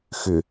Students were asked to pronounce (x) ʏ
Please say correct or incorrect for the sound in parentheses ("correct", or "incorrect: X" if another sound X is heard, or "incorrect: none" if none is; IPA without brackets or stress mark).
correct